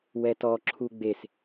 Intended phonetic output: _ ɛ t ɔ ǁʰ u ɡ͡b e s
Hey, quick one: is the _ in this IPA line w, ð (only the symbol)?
w